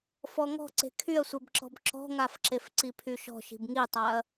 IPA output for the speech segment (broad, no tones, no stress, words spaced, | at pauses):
fɔŋɔ̤ǀe̤ kʰyɐ̯sʷebǁɔ̤b ǁɔ̤ŋafǁef ǀipʰyʃɔ̤ ʃi̤bŋitˤaɐ̯